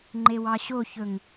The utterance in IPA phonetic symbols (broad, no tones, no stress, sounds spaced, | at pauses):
ŋ͡ǃ e w ɑ ɕ o ç ɵ ŋ